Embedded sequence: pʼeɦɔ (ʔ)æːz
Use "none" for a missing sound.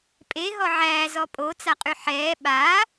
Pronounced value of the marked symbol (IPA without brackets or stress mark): ʕ